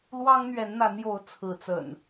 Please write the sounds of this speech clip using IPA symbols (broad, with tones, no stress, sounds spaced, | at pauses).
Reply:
l w ɑ˦ ŋ n̪ ɥ ɛ˨˦ n n̪ a˨˦ n j o˨˦ ʊ̯ t͡sʰ ɹ̩˨˦ t͡s ə̰˨˩ n